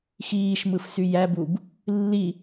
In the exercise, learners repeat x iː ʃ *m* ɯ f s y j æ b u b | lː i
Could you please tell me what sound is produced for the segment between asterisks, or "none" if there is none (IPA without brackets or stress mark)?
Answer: m